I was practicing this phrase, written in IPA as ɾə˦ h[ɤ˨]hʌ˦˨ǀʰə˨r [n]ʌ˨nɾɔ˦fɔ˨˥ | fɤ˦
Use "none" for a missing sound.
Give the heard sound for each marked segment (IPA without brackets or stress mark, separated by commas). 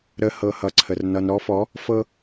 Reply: ɤ˦˨, n